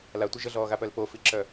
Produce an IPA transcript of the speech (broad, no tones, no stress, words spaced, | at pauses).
latʷi ʒəɮɔːɣapœl pofiǁœ